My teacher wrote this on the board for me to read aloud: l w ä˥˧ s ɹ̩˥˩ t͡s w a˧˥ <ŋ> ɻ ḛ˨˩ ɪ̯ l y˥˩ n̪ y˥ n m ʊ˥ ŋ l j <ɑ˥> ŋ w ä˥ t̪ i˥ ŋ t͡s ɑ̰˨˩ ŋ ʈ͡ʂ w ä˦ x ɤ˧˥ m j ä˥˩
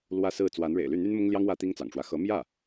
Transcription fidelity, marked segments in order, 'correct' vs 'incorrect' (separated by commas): incorrect, correct